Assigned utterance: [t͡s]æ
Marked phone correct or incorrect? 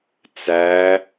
correct